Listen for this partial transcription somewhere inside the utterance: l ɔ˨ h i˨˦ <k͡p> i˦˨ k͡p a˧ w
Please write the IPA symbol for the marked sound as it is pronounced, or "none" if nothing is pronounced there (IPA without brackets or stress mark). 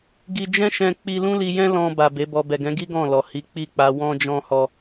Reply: k͡p